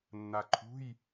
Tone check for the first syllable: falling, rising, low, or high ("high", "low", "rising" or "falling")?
low